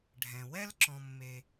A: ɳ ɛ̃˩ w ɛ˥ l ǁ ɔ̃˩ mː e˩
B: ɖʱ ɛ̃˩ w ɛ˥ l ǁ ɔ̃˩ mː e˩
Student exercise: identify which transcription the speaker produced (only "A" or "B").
B